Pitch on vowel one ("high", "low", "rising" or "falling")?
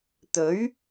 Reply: rising